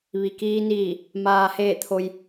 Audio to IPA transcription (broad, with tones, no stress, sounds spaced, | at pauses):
ʋ i˩ k iː˧ n iː˧˩ | m aː˩ h eː˧˩ t̪ʰ o˩ j